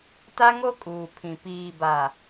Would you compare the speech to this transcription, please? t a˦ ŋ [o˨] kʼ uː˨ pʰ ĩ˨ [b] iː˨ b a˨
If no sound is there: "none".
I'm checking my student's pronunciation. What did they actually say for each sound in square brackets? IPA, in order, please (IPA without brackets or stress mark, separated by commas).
o˦, p